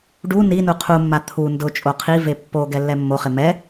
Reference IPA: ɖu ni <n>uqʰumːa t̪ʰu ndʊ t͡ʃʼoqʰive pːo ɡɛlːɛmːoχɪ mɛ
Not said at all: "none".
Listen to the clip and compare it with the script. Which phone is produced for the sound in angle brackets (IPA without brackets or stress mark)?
n